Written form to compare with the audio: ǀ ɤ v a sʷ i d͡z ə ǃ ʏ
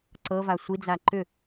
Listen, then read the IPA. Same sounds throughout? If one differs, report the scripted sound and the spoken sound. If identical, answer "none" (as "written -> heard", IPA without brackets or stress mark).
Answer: ə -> a